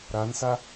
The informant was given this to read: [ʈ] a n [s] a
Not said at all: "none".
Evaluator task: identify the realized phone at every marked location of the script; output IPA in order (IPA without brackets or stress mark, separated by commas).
ɾ, s